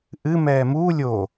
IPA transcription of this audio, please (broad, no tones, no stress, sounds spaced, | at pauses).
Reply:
ʔ ɨ m ɛː m uː lʲ o